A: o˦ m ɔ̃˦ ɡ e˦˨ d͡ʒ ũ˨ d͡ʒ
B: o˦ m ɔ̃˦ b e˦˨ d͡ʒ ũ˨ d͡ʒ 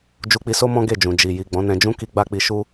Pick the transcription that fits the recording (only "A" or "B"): A